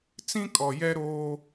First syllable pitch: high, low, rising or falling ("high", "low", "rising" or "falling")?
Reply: high